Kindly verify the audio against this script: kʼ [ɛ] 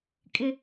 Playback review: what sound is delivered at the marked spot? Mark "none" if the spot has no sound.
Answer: ɪ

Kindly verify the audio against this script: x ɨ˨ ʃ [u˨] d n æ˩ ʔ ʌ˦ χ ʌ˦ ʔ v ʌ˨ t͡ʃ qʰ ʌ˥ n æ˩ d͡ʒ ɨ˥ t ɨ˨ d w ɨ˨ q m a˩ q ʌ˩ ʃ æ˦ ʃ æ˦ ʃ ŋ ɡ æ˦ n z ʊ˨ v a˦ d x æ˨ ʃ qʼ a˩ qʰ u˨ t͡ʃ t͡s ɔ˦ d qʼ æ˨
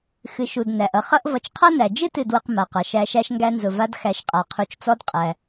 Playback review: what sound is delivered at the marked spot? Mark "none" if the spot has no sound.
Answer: u˨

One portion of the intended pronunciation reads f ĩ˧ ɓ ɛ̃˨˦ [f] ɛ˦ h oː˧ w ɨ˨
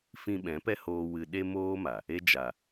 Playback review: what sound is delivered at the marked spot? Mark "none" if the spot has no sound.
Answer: p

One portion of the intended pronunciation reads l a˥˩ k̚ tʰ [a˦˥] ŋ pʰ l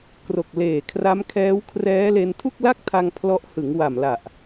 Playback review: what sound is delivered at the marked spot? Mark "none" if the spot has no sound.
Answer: a˧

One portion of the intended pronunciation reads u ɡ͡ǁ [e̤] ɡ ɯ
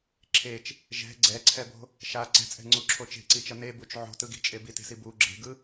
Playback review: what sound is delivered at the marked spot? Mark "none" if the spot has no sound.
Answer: e̤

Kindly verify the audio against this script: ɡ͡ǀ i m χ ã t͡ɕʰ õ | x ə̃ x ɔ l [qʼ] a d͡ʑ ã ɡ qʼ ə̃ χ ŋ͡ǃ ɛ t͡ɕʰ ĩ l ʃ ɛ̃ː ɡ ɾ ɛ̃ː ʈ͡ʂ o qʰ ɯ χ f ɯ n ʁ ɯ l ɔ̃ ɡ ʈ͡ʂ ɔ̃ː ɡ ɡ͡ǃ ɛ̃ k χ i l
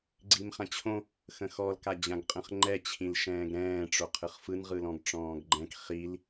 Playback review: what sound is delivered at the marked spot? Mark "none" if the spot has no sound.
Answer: k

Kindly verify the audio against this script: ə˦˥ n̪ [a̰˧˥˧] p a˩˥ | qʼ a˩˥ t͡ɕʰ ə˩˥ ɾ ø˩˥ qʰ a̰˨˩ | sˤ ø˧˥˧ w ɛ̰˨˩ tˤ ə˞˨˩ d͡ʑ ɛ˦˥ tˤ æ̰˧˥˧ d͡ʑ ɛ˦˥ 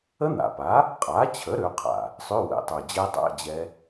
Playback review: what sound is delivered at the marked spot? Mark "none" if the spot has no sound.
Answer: a̰˨˩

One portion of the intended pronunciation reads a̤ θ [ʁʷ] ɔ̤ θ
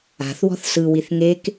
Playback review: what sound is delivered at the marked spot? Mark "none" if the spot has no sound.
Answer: w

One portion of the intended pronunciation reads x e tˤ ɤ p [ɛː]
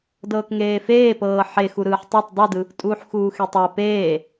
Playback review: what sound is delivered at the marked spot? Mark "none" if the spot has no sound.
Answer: eː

